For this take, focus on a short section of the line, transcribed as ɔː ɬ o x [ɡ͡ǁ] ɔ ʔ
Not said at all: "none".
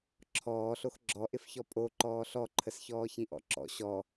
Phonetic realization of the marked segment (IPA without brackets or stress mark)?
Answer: ɡ͡ǁ